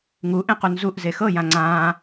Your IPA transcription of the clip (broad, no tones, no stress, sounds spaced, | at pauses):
ŋ u ʔ ẽ q u n z u ʔ z e x ɤ j ã ŋ͡ǀ ãː